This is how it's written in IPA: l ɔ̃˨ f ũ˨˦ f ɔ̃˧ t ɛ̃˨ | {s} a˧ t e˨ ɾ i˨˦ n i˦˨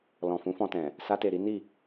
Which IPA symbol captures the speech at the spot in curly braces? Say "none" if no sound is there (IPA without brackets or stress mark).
s